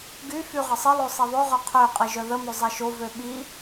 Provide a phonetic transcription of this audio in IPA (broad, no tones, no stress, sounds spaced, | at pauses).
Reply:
ɡ y f y ʁ ə sˤ ə lˠ o sˤ i ðˤ ø ʁ œ qʰ ø qʼ i ʒ œ ð ə m ø zˤ e ʃ o v ø ɓ i